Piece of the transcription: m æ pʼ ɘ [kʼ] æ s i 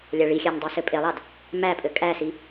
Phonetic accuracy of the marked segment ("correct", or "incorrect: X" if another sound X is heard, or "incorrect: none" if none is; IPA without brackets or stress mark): correct